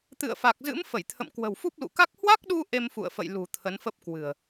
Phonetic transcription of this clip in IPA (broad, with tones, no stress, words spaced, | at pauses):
t̪ɨ̰˧˨ə̯fa˨˩k̚zɨ̰˧˥m fə˧˩jt̪ʰə̰˧˨mkwə̤˨˩wfu˦˥p̚ lṵ˧˨ka˦˥k̚ hwa˦˥k̚ɗu˧ ʔe˧mfṵ˧˨ə̯fə̰˧˨j lṳ˨˩ t̪ʰə˨˦nfə˦˥p̚kwɨ̤˨˩ə̯